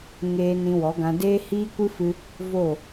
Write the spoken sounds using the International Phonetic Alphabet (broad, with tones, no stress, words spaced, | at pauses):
ŋeː˧ nĩ˧wɔ˨˦ɡã˧ deː˦ hiː˦kʷɨ˦fɨ˧ | vo˦˨